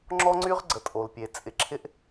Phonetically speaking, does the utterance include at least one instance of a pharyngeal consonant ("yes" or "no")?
no